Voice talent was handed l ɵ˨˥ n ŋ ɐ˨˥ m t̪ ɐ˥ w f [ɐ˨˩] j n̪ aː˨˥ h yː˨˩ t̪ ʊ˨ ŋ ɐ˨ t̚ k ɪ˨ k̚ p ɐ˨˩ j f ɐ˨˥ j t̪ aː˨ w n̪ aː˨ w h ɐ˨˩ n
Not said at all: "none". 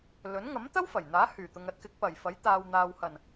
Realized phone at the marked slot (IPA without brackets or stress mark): ɐ˨˩